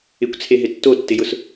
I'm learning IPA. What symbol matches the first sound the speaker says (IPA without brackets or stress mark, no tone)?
ɪ